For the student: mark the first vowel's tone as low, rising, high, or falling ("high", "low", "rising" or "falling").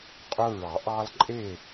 high